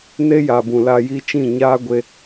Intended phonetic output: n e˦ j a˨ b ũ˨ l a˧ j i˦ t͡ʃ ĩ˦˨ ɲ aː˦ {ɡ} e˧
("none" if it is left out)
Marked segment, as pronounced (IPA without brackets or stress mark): ɡʷ